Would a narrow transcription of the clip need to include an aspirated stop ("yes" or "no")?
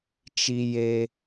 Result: no